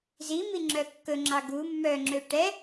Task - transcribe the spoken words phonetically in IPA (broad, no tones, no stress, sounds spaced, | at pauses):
z i m i ŋ͡ǁ œ kː ɵ ŋ͡ǁ ɑ ɡ u mː œ ŋ͡ǁ ø ʈ ɛ